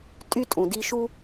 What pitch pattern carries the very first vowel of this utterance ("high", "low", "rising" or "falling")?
high